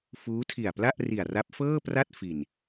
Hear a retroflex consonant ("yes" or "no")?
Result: no